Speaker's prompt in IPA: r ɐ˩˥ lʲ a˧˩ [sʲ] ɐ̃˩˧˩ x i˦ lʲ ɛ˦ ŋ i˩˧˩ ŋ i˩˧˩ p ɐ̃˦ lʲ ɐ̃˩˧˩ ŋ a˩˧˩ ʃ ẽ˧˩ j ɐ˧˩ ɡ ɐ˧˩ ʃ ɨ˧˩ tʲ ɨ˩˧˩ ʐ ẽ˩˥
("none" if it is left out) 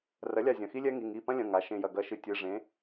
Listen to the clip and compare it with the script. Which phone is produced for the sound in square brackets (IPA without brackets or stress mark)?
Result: zʲ